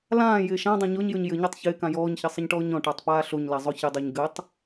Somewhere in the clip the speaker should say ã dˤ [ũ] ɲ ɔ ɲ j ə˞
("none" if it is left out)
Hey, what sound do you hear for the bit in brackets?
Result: õ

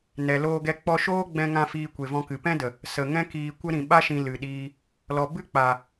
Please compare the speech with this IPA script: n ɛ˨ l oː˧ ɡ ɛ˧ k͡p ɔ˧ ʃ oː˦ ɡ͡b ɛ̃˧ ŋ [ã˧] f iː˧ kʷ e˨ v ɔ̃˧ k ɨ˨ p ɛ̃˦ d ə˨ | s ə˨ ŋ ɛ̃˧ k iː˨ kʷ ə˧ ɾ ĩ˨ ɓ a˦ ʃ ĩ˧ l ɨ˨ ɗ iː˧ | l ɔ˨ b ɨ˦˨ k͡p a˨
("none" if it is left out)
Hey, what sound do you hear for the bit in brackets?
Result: ã˧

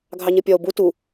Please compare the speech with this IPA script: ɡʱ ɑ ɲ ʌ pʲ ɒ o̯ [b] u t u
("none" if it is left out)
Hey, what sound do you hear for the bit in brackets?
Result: b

